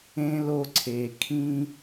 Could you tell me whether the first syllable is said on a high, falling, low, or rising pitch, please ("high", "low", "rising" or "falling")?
low